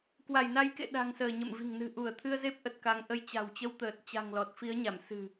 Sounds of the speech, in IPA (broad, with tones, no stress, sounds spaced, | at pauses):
k w a˧˩ j n a˨˦ j k ḛ˧˨ ɗ a̤˨˩ ŋ s əː˧˩ ɲ ə̰˧˨ m v i̤˨˩ ŋ n ɨ̤˨˩ ʔ u˧˩ ə̯ t̪ʰ ɨ˧ ə̯ z e˦˥ p̚ ʔ ə˨˩ t̚ k a˨˦ ŋ ʔ ə˧ j t͡ɕ a̤˨˩ w t͡ɕ ə˧ w t̪ əː˨˩ t̚ t͡ɕ a̤˨˩ ŋ l ɔ˨˩ t̚ f i˨˦ ə̯ ɲ a˧˩ m s ɨ̤˨˩